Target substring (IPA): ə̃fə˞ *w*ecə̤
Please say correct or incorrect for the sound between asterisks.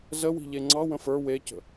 correct